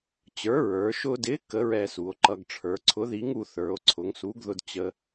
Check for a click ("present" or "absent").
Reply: present